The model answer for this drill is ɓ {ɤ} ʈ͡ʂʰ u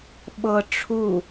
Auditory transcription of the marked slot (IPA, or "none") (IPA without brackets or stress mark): ɤ